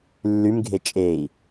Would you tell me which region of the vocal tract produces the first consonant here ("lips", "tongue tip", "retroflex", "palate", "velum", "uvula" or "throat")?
tongue tip